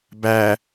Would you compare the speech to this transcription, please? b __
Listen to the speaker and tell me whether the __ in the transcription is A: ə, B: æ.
B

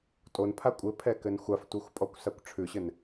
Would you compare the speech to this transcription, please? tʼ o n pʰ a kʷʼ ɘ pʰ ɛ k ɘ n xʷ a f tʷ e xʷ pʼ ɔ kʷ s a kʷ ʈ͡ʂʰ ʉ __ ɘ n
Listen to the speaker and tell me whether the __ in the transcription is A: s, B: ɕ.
B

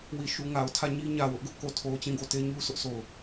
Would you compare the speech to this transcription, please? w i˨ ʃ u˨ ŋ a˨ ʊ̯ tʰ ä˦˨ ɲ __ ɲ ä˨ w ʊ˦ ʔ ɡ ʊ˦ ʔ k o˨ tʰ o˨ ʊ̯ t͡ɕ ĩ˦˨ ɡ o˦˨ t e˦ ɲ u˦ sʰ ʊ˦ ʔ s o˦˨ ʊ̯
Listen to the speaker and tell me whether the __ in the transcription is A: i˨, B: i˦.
B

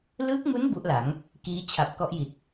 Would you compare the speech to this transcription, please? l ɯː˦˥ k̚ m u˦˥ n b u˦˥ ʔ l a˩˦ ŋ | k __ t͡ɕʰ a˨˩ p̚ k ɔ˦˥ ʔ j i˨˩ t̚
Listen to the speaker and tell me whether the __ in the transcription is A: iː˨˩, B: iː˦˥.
B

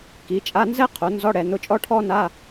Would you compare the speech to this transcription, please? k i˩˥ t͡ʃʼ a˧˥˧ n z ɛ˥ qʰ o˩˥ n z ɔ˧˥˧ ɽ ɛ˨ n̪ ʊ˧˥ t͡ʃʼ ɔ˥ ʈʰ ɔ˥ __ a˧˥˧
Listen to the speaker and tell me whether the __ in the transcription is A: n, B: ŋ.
A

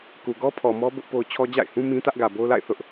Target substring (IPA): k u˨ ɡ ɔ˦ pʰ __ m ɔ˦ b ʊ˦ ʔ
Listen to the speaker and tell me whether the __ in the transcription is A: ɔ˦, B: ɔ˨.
B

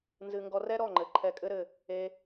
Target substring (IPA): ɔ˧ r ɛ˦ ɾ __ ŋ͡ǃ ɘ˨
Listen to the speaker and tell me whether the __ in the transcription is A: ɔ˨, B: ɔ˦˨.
B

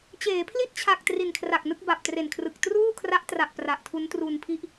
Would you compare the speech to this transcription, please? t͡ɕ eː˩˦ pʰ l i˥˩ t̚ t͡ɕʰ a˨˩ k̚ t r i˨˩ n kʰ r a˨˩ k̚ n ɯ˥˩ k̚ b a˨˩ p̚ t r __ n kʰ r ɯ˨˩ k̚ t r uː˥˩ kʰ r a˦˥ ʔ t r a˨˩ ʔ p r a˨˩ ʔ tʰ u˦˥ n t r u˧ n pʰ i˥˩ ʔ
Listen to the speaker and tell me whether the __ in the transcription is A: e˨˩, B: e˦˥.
A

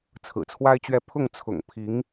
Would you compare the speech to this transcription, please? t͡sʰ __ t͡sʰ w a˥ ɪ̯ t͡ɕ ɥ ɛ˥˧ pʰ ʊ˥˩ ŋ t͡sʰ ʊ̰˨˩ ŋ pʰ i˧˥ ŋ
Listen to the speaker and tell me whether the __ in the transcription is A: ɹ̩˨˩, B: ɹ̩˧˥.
A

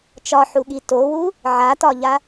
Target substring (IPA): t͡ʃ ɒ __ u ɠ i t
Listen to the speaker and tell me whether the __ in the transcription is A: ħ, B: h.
A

